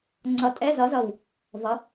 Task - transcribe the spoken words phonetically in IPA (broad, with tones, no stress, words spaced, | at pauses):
ŋ͡ǀʌ˧˩tʼɛ˧˥˧zʌ˨˥zʌ˧˩w | vʌ˨˥